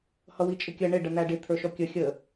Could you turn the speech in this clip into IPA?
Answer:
h ʌ w i t͡ʃʼ ɪ kʲ ə ɳ ɪ ɖ ə n̪ æ ɖ ɪ t̪ʰ ə˞ ʃ ɔ kʲ ə xʲ ə

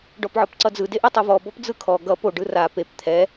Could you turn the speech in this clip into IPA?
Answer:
ɖ ɔ p ʕ ɔ p ǀ ʌ d͡z ɯ d e ʔ o tˤ o v ɔ b ɔ p d͡z ɯ kʰ ɔ ɡ ʌ p o ɖ ɯ r a p e p t̪ʰ ɛ

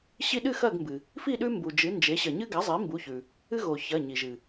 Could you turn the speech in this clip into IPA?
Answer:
ɕ i˦ ɗ ɨ˥˨ x ɐ˥˨ ɡ m b ɨ˩ | f i˥˨ ɗ ʉ˦ m b u˩ d͡ʒ ɨ˩˥ n d͡ʒ e˩˥ ɕ ɐ˩ ɲ ɨ˦ ɡ a˩˥ zˤ i˩˥ m b u˩˧˩ ç ʉ˩ | ɨ˦ ɣ o˩ ç ɐ˩˧˩ ɲ i˩ ʒ ɨ˩

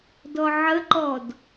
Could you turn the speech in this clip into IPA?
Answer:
d ɔ ʕ ə ǃ ɔ d

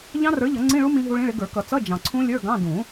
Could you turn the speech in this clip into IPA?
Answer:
ʎ ɑ̃˦˥ r ə˞˨˥ ʎ ʌ˨˩˦ ŋ͡ǀ ĩ˧˥˧ ɭ u˦˥ m ĩ˦˥ ɦ u˦˥ ɭ ĩ˧˥˧ ɭ ɪ˨˥ ɡ ə˞˨˩˦ k ʌ˨˩˦ t͡s ʌ˧˥˧ d͡ʒ ɑ̃˨ ǀʰ ũ˦˥ lʲ ə˞˧˥˧ ɡ ɑ̃˧˥˧ d ũ˨˩˦

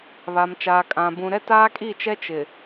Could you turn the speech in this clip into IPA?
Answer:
β a˨ m t͡ʃ aː˨ kʼ ã˨ b ũ˨ ɾ ɛ˦ t aː˦ kʼ i˦˨ t͡ʃ ɛ˦ t͡ʃ ɪ˨

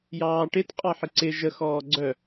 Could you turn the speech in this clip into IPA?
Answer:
j ɑː ʈ ɪ t qʼ ɑ ħ ɪ ǀ ɪ ʒ ə x ɔː ɡ͡ǀ œ

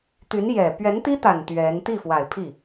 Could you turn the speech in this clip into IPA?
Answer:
t̪ y˧˥ n j ɛ˨˩ p ɥ ɛ˧˥ n t̪ i˥ t̪ a˨˩ n t̪ ɥ ɛ˧˥ n t̪ i˥˩ f w a˨˩ ɪ̯ pʰ i˥˩

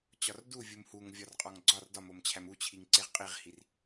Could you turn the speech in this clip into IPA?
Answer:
t͡ɕ ɒ r d u vʲ u m h u ŋ vʲ ɒ r qʼ ɒ ŋ ɡ͡ǀ ɒ r d ɒ m o m t͡ɕʰ æ m u t͡ɕʰ i ŋ ǀ e ʁ qʼ i ʁ h i r

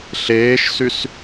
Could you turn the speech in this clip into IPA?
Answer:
ɬ eː ʃ s y s

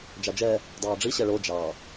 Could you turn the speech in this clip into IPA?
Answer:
d͡ʒ ɑ d͡ʒ ɛ | dˤ ɑː ɖ͡ʐ i ɕ ɛ ɭ o d͡ʒ ɑ

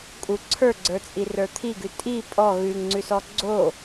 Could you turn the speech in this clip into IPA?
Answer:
kʼ u ǀʰ ə˞ ɡ͡ǀ ə˞ t͡sʼ i r ə˞ t̪ʰ i ɡ ʉ tʼ i pʼ ɔ ɣ ʉ ŋ ŋ͡ǀ ʉ s ɔ ɡ͡ǀ o

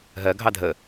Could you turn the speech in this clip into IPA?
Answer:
ɦ ɜ ɡʱ ɑ dʱ ə

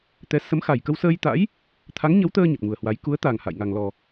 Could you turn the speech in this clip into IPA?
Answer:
t̪ ɛ˨˦ s ə˨˦ m x a˨˩ j k ə˧ w s əː˧ j t̪ a̰˧˥ j | t̪ʰ a˨˦ ŋ ɲ ə˨˦ w t̪ əː˧ ɲ ə˨˩ t̚ ŋ u˨˩ ə̯ h w a˨˦ j k u˨˦ ə̯ t̪ a˨˩ ŋ h a̰˧˨ j ŋ a˨˩ ŋ l ɔ˨˩

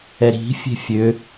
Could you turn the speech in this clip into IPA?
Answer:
ɛ ɾ i̤ fʲ e̤ fʲ ø

